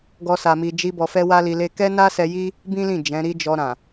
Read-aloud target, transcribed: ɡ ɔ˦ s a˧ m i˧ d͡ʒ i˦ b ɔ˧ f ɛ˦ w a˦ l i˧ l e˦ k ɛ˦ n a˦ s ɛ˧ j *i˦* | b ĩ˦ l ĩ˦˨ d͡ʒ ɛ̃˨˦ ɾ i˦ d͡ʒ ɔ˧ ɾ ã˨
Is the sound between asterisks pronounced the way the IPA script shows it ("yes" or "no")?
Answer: yes